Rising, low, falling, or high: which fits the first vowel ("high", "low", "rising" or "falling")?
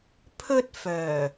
high